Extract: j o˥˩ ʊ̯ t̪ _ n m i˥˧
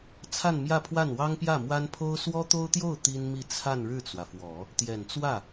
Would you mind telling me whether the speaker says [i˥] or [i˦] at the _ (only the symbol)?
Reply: i˥